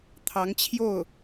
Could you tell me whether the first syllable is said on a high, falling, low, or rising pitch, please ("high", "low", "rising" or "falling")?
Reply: rising